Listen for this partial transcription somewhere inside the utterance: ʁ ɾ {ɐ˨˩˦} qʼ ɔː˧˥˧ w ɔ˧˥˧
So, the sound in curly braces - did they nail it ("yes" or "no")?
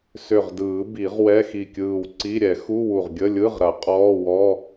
yes